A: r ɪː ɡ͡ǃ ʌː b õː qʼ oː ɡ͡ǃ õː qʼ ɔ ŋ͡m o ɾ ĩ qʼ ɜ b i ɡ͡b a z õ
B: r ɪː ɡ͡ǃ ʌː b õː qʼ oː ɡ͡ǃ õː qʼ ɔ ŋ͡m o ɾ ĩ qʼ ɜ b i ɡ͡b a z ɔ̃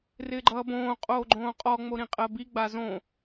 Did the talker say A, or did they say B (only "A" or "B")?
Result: A